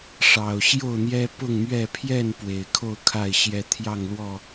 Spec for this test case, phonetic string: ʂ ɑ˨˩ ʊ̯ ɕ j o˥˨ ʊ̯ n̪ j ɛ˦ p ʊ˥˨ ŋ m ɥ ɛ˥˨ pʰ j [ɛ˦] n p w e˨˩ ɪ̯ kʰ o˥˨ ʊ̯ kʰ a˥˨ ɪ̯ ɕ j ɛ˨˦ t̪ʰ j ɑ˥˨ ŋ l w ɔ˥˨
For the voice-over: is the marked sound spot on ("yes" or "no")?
no